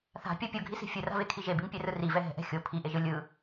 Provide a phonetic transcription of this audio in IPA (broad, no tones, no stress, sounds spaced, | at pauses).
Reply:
θ a̤ pʲ ɔ pʲ o ɡʱ i s i̤ fʲ ɯ r a̤ v e kʰ i ʒ e b i ŋ pʲ ɛ r ɯ r i v ɛ ɦ ɛ̤ ʔ ɛ̤ xʲ o pʰ i ʔ e ʒ ɯ lʲ ɯ